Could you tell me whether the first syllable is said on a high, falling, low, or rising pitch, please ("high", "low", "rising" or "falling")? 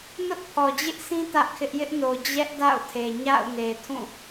high